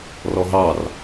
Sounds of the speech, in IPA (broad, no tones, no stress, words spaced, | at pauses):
rɔɦɑr